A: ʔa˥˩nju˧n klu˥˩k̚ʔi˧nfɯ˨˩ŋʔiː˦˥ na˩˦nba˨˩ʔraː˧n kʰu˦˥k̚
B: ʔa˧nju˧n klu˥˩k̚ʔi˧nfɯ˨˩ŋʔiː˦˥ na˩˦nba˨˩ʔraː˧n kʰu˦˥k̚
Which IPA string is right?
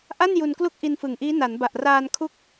A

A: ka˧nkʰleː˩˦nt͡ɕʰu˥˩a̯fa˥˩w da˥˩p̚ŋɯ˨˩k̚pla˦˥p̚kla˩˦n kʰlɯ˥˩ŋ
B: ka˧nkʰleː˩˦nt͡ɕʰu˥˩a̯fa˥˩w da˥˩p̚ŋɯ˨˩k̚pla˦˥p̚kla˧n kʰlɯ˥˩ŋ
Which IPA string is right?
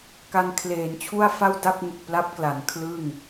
A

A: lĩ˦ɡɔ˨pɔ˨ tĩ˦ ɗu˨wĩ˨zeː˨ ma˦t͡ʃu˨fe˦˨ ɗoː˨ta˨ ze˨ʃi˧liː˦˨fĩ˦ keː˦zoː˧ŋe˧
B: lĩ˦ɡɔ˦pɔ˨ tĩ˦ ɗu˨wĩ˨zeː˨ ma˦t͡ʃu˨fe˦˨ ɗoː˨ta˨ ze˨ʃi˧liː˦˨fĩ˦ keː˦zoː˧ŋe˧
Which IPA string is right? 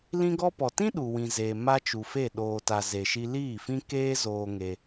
B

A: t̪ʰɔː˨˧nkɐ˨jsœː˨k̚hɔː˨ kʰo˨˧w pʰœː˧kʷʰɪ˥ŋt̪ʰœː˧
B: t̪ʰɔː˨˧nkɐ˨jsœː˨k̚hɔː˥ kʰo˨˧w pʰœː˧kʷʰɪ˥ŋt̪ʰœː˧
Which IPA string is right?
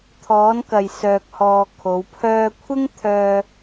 A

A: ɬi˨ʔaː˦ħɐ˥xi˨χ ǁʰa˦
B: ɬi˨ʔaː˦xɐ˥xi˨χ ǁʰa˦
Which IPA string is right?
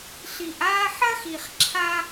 A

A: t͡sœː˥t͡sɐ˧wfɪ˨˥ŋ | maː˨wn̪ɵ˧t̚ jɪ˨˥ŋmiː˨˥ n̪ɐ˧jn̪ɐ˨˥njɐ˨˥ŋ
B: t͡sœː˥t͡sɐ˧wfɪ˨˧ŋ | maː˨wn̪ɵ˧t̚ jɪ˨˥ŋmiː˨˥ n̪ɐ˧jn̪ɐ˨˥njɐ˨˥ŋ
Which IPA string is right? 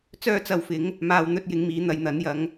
A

